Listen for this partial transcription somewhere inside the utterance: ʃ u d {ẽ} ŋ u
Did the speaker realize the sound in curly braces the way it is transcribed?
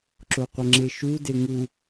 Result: no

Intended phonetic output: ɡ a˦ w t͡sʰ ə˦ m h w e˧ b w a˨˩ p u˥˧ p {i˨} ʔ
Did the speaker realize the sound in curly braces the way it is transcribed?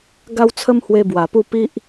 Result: no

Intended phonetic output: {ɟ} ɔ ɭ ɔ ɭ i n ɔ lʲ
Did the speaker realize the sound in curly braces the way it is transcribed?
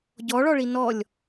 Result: yes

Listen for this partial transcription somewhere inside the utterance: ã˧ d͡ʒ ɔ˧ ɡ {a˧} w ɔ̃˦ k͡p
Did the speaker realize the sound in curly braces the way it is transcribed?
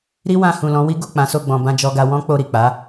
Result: yes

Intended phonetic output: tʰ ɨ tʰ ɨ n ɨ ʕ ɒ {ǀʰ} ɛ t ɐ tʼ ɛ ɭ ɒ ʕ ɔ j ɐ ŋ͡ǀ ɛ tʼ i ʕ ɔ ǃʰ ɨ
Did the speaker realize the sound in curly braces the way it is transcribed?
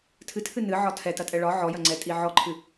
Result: no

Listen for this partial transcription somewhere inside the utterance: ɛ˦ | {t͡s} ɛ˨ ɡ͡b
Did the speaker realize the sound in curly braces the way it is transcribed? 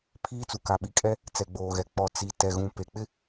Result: yes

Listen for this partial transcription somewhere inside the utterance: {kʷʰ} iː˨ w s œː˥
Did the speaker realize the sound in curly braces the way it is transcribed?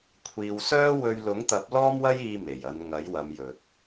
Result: yes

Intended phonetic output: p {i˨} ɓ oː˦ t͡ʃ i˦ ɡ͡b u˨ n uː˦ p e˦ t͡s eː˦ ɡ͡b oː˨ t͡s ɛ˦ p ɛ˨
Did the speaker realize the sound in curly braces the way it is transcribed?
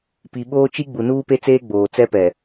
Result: yes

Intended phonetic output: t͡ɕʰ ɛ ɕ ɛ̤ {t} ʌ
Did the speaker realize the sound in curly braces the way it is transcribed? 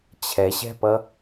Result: no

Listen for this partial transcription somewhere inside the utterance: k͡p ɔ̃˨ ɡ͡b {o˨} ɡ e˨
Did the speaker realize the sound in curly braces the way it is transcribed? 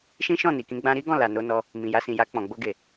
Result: no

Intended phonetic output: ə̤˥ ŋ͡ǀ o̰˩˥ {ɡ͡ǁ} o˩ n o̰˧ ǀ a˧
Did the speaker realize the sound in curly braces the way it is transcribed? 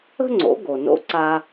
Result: no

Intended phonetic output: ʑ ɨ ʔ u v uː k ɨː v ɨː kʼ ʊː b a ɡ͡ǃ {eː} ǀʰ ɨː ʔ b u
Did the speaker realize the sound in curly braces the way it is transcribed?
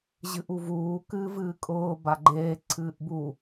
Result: yes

